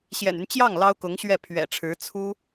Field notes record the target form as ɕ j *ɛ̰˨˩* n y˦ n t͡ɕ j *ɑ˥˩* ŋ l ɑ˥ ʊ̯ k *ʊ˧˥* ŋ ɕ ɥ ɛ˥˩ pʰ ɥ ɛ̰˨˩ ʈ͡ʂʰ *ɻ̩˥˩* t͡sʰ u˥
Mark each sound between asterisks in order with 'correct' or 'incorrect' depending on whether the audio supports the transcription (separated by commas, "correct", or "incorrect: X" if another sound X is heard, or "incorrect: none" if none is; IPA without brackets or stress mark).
correct, correct, correct, incorrect: ɻ̩˧˥